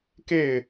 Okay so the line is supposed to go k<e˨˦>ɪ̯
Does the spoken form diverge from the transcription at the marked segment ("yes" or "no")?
yes